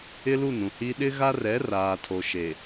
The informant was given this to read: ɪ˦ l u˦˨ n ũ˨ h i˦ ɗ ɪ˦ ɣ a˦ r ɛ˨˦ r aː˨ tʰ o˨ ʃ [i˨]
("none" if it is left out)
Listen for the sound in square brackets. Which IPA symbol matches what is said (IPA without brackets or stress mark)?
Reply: e˨